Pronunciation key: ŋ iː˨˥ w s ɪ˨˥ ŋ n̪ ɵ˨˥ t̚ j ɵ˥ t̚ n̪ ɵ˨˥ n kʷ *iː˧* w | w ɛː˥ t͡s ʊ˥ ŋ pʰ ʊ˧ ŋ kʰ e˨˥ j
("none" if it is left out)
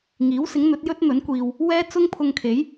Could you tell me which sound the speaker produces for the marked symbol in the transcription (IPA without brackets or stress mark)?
iː˧